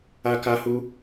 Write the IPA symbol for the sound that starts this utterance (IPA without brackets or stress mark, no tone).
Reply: a